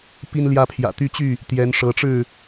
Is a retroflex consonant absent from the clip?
no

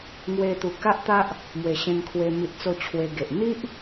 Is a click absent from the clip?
yes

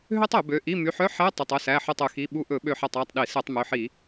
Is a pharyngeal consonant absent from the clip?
no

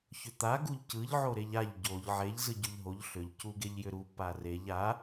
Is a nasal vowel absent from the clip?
yes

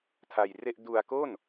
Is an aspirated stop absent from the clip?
no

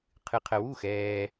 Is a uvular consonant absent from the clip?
no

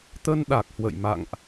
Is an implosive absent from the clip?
no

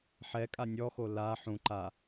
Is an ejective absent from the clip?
no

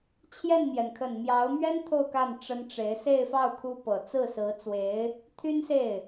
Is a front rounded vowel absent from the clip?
no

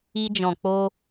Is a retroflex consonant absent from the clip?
yes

